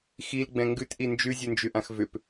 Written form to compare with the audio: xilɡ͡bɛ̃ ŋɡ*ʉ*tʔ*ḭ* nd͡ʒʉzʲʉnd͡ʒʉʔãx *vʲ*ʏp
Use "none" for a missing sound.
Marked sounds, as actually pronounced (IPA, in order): ʉ, i, v

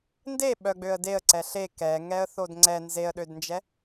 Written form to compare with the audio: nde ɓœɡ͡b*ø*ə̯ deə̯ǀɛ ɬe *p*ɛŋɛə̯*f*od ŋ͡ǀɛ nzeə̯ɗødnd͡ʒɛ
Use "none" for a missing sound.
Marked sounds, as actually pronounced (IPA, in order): ø, k, θ

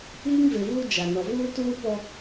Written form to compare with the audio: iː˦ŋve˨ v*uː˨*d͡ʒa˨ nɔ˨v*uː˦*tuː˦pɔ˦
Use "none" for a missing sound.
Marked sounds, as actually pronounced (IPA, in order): uː˦, uː˦

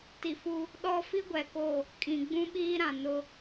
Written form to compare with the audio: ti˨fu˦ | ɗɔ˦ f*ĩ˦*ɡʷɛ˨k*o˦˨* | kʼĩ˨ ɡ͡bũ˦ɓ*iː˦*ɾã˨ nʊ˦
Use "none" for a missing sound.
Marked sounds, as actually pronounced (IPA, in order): i˦, o˦˨, iː˦

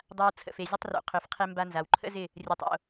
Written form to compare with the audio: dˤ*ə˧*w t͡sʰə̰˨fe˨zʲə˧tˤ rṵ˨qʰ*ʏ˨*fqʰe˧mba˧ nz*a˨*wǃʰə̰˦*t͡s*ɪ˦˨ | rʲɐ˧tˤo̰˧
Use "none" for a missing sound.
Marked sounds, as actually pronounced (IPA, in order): a˧, ʏ˨, a˨, z

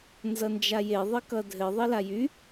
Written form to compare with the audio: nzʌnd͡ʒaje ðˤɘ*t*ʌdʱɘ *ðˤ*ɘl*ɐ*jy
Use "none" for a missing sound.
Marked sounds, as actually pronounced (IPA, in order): k, ðˤ, a

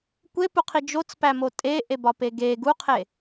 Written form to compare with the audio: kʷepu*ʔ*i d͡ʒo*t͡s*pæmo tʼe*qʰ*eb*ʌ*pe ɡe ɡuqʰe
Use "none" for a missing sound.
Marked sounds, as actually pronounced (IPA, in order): qʰ, t͡s, ʔ, ɒ

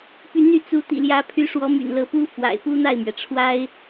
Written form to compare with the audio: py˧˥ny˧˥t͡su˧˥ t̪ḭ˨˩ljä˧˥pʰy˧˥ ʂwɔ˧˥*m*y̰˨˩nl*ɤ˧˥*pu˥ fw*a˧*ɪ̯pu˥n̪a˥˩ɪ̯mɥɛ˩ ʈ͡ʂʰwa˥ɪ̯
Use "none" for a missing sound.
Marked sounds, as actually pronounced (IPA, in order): m, ɤ˧˥, a̰˨˩

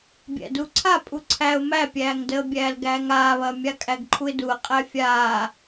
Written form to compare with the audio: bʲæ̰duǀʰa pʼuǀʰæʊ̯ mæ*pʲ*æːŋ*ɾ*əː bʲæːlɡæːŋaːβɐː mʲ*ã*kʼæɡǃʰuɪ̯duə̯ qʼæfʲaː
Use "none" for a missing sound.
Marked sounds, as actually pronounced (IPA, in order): pʲ, d, a

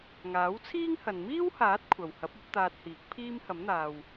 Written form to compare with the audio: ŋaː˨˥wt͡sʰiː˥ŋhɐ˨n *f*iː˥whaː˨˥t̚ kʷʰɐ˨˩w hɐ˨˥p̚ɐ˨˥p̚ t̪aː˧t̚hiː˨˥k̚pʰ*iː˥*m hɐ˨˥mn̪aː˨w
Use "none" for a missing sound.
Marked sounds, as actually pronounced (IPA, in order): m, iː˥

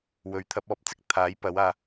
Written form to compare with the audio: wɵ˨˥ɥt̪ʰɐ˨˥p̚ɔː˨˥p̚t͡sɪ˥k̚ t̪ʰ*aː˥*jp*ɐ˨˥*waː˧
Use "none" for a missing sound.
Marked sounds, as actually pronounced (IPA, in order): aː˨˥, ɐ˨˥

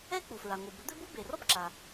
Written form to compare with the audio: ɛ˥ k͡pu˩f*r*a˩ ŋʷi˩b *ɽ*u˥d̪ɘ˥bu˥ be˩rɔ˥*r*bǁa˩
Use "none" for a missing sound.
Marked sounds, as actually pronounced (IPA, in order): ɹ, ɾ, none

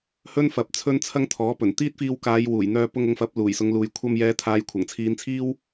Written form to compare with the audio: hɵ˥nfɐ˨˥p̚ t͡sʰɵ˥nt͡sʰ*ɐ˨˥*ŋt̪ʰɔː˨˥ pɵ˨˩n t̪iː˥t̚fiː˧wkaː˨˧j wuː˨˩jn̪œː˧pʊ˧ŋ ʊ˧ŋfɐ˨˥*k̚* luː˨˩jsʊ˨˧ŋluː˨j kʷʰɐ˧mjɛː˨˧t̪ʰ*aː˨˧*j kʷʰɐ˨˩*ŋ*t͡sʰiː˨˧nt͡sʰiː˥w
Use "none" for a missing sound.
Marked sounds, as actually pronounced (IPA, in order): ɐ˥, p̚, aː˨˧, ŋ

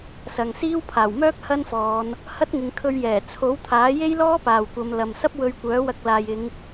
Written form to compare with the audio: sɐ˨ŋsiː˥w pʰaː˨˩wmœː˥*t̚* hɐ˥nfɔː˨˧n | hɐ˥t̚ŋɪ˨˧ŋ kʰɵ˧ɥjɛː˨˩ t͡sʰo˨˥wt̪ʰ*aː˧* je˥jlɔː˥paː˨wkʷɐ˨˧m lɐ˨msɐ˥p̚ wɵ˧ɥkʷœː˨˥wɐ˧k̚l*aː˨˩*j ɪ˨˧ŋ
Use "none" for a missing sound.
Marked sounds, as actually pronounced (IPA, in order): k̚, aː˨˥, aː˨

